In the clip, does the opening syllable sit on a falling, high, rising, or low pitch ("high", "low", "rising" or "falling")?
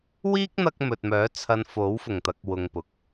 high